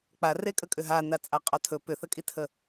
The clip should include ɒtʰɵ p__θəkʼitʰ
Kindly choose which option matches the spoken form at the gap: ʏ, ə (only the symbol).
ʏ